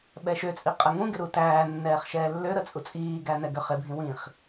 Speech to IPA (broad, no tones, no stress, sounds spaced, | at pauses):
ɓ ɛ ʃ ø t͡sʼ i qʼ ə ŋ ũ ɡ ɪ ɾ u t æː nː ɛː χ ʃ ɛː lː ø ɾ ə t͡sʼ u t͡sʼ iː ɡ æ n ɛ ɡ ø χ ɪ bʱ ĩ w ĩ χ